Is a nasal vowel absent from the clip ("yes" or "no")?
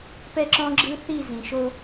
no